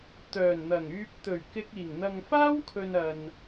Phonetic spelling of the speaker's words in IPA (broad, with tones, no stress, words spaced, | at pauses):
t̪œː˨˩nn̪ɐ˨˩ŋyː˧p̚ t̪ɵ˨˩ɥkɪ˧k̚ iː˨˩ŋ n̪ɐ˨ŋfaː˥wkʰɵ˨n ɐ˨n